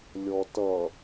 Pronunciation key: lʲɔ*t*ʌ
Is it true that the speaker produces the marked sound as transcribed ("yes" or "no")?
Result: yes